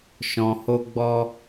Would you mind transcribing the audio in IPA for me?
ʃɔ̃˧ho˦ɡ͡bɔ˦

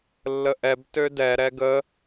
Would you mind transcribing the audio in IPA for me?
lːəʔɛb tødɛ ɾɛɡə

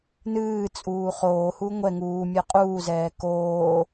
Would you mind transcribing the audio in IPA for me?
nɨːt͡sʼuː χoːhu ŋʷɛ ŋuː mʲɛqʼuːzɛː koː

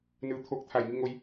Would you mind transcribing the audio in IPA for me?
nɯː˩˧ t̪ʰoː˧k̚t̪ʰa˧˩jŋi˥˨ ŋo˧j

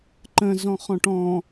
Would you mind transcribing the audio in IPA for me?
ǃə̃zɔ̃χɔ̃ʈ ɔ̃

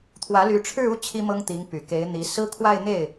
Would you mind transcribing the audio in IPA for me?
t̪ʰwä˧˥ly˧˥ʈ͡ʂʰɻ̩˥˧u˥˩ t͡ɕʰi˥mɤ˥ŋt̪i˧˥ŋ py˨˩ke˧˥ɪ̯n̪i˧˥ sɹ̩˥kʰwa˥˧ɪ̯ n̪e˥˩ɪ̯

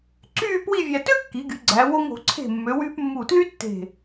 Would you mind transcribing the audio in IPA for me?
ǀyː˥˧ pwi˥˧vʲæ˧ tø˥kːi˩˧ɡy˩˧ ɡ͡ǀæ˩˧wo˧ŋ o̤˩˧ ǀʰe̤˧˩ mːø˩˧wyː˧p mːu˧˩tly˥ tːe̤˧˩

